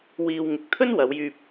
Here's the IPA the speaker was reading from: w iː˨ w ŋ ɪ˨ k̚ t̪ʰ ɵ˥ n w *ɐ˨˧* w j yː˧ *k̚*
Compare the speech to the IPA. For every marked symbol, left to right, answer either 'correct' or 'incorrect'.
correct, incorrect: p̚

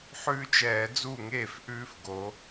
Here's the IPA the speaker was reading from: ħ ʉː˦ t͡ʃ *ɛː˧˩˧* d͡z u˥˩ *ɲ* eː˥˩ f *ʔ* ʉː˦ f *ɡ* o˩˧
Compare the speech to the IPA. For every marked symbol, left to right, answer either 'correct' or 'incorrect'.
correct, incorrect: ŋ, correct, correct

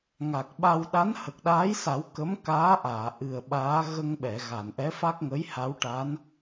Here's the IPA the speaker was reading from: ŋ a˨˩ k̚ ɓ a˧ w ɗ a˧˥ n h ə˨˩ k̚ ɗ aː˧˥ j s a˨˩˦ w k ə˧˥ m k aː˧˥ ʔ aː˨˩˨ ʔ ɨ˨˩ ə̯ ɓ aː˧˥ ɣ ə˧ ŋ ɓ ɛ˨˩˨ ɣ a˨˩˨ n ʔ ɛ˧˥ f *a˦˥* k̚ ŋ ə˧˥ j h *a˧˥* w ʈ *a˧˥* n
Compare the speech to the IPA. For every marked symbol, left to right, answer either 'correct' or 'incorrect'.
correct, correct, correct

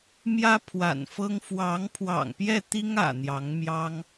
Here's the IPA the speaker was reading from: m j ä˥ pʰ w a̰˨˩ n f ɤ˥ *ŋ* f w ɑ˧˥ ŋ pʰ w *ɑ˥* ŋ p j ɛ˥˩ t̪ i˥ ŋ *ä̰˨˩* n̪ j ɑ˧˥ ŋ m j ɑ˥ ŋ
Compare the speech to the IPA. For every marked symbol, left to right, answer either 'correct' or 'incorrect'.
correct, incorrect: ɑ̰˨˩, correct

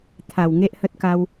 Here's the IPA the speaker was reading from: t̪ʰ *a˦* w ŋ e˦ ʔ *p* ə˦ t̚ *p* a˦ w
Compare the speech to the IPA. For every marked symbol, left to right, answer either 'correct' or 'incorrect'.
incorrect: a˨˩, incorrect: h, incorrect: k

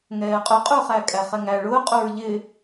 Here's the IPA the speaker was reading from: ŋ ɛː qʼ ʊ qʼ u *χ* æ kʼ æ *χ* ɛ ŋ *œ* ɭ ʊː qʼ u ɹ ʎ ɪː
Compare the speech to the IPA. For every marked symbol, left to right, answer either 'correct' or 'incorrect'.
correct, correct, incorrect: æ

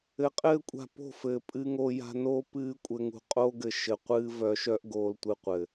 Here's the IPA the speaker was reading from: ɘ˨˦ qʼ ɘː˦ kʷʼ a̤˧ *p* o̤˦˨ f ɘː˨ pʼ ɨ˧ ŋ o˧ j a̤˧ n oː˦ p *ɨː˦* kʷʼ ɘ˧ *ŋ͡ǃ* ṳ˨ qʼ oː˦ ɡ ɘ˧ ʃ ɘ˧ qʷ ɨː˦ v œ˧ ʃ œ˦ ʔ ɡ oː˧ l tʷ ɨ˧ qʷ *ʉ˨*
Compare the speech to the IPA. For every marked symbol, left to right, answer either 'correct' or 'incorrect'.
correct, correct, incorrect: ŋ, incorrect: ɘ˨

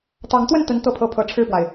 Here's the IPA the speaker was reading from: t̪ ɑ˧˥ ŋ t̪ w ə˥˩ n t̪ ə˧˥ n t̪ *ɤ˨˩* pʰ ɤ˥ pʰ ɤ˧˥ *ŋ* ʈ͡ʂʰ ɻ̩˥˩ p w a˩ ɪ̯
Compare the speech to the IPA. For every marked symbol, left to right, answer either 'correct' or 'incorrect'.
incorrect: ɤ˥˩, incorrect: none

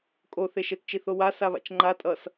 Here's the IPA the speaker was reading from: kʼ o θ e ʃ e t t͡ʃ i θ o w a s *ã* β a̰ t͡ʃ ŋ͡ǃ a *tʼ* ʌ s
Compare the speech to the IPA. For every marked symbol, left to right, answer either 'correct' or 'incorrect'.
incorrect: a, correct

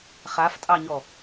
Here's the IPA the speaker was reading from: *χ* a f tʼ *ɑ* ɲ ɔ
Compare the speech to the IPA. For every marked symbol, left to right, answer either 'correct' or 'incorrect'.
correct, correct

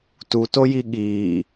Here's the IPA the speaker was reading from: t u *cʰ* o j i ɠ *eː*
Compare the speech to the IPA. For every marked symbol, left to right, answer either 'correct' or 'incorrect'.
incorrect: t, incorrect: iː

